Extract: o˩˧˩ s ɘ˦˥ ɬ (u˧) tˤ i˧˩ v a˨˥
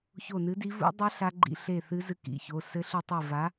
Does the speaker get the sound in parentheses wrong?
no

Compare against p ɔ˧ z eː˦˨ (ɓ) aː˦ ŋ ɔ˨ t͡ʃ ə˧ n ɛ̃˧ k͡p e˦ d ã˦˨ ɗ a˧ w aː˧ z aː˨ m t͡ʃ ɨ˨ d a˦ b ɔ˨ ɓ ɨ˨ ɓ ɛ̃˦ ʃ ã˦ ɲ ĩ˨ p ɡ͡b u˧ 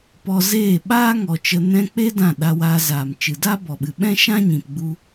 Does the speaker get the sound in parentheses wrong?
no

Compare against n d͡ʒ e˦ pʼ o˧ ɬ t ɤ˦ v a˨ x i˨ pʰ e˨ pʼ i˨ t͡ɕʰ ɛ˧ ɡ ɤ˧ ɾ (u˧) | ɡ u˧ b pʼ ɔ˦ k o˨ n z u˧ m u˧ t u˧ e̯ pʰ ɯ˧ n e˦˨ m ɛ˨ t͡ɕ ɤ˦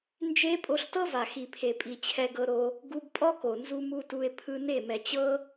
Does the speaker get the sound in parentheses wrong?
yes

